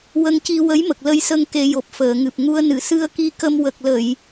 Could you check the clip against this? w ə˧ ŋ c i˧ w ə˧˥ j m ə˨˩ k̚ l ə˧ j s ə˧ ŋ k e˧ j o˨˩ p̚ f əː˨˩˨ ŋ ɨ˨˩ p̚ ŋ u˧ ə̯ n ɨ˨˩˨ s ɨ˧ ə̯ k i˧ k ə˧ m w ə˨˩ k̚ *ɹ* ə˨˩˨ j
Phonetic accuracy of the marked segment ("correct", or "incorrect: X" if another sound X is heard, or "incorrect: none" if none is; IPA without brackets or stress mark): incorrect: l